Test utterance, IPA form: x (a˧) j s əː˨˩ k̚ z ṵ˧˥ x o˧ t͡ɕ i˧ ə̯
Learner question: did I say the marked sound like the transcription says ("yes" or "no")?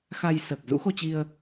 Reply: yes